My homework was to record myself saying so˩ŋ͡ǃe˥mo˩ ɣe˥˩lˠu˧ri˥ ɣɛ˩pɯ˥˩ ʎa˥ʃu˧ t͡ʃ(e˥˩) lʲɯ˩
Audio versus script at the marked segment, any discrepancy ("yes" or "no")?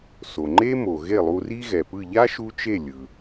no